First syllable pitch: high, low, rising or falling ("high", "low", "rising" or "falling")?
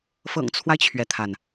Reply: low